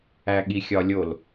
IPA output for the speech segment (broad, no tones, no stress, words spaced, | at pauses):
æɠixʲɒlʲol